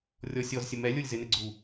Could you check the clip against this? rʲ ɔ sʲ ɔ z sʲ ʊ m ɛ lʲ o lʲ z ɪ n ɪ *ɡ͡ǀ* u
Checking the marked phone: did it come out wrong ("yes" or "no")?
no